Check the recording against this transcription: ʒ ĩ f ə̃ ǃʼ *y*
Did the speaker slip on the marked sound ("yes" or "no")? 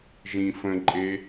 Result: yes